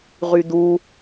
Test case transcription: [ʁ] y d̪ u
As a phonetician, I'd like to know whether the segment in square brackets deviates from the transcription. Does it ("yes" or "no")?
no